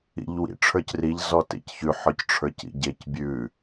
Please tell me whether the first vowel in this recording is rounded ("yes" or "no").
no